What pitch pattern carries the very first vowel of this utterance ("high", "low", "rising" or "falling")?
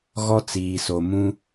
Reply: high